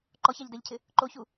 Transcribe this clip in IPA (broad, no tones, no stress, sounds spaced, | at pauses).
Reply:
ǃ ɔ ç a ʎ d ɛ ʎ cʰ ɪ | ǃ o ç u